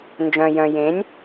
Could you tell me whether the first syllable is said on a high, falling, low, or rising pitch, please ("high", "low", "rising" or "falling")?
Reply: low